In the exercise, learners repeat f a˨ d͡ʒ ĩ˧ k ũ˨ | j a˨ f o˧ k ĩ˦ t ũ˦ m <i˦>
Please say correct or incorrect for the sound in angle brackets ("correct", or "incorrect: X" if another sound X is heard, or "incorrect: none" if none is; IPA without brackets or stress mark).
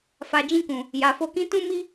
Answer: correct